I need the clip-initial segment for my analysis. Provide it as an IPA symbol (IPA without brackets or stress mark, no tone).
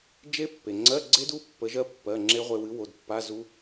d͡ʒ